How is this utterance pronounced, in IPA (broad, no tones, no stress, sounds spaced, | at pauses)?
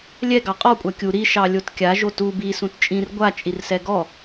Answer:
lʲ ɛ ɡ ɑ qʼ ɔ kʷʼ a kʲ u ɾ i ʃ ɑ lʲ o t kʲ a ʒ o t u b i s ũ t t͡ʃʼ ĩ r ɡʷ a t͡ʃʼ i r s ɛ ɡ ɔ